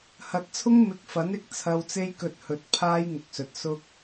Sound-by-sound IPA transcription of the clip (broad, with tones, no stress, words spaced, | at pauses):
hɐ˨t̚t͡sʰʊ˥ŋ mɪ˧k̚fɐ˨˥nɪ˨k̚ t͡sʰɐ˧wt͡se˥jkɵ˧t̚hɵ˨˥t̚ pʰaː˥j ŋʊ˨k̚sɵ˨t̚ sʊ˧k̚